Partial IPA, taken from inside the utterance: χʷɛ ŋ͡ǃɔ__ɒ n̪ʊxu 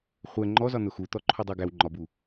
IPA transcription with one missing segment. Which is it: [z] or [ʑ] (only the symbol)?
z